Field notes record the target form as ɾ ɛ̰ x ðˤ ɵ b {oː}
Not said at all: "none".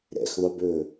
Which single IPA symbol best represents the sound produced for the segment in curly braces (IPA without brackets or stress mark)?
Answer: ɵː